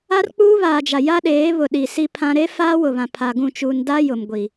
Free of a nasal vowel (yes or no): no